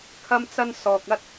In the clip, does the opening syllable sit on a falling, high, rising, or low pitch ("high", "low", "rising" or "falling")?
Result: high